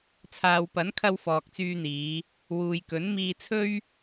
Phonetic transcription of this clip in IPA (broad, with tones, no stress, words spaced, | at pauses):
t͡sʰaː˨wpɐ˨˥nkʰɐ˧w fɔː˨k̚t͡syː˧n̪iː˨˧ | wuː˨jkɵ˨˥nmiː˧ t͡sʰɵ˥ɥ